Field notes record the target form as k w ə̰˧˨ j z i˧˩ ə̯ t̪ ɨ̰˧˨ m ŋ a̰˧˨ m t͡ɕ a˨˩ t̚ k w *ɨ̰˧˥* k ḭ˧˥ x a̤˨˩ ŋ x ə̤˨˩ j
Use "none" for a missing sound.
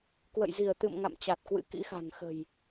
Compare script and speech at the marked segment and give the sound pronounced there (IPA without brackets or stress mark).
ɨ̰˧˥